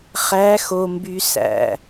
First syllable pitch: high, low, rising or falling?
rising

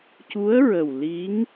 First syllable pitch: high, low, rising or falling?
rising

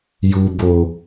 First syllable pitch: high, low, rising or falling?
low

